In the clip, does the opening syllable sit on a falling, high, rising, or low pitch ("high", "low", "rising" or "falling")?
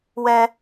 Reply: high